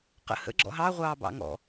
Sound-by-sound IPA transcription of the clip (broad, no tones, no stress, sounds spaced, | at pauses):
q ə̰ h ə̰ ɡ͡ǁ ɔ̰ ɦ ɑ ʁʷ ɑː b ɑ̰ ŋ ɔ̰